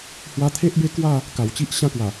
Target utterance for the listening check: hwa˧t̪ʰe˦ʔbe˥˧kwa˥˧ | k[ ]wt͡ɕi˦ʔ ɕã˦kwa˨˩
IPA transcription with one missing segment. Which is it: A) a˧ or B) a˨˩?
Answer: B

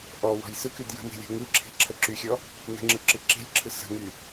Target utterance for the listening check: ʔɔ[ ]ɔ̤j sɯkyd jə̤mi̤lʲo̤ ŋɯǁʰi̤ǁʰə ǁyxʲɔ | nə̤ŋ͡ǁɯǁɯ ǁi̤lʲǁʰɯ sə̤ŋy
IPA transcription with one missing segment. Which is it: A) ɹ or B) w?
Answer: B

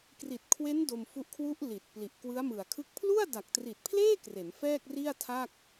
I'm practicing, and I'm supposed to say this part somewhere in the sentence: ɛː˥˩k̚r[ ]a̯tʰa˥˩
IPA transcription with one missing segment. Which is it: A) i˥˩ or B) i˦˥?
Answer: A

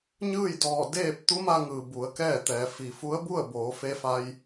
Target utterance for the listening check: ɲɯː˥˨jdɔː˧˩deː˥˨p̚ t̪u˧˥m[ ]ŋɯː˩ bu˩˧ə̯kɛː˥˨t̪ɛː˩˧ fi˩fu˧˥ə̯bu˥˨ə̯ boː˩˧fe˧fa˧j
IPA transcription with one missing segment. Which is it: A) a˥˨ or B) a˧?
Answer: B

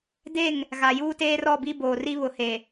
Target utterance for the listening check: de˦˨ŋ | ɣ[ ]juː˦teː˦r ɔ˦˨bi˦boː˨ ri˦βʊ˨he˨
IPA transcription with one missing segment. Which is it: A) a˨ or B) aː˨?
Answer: A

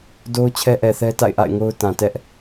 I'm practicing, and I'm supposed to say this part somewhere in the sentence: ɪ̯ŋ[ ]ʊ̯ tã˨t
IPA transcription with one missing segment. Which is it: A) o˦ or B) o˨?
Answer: A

